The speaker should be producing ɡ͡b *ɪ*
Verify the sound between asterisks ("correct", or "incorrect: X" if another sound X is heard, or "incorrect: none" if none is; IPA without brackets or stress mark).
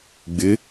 correct